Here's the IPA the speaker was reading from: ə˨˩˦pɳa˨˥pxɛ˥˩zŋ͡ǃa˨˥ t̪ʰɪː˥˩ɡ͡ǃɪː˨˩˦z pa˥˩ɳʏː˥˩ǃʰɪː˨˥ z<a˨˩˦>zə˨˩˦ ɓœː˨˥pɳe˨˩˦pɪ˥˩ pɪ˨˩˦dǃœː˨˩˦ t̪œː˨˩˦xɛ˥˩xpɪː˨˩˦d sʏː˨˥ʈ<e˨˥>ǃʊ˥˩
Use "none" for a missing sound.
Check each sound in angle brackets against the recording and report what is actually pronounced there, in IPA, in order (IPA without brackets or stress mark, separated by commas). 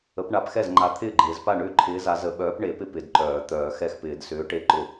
a˨˥, e˥˩